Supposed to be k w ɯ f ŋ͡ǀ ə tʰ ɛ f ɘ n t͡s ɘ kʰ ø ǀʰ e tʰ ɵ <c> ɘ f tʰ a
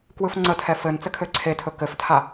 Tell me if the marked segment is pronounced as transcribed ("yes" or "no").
no